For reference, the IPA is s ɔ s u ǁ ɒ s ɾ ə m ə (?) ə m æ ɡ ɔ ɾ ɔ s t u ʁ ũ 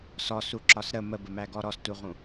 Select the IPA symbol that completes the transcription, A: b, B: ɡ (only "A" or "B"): A